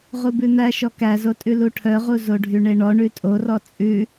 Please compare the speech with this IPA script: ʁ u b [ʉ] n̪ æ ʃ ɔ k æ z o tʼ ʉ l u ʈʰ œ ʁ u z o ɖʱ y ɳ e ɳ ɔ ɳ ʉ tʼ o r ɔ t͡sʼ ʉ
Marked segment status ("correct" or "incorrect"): correct